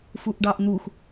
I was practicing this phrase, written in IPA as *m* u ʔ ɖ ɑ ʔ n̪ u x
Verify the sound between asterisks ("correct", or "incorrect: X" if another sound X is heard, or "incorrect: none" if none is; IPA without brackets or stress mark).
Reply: incorrect: f